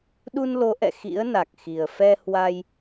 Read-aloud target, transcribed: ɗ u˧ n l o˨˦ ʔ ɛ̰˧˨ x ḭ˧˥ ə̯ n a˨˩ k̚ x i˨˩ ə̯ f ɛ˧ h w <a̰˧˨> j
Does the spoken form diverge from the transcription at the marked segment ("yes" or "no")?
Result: yes